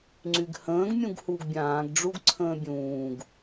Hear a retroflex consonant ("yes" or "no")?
yes